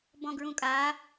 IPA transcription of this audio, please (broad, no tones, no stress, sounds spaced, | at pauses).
b ɔ̃ ɡ ɹ ũ kʼ a